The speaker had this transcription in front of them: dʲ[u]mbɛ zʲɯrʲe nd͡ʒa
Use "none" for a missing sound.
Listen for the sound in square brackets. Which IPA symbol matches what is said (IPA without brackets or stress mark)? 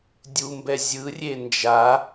u